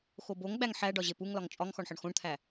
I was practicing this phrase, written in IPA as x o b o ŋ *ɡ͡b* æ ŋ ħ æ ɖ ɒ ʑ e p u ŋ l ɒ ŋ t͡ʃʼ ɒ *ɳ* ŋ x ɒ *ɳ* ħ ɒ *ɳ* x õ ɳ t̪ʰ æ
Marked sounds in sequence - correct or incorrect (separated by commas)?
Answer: correct, incorrect, correct, correct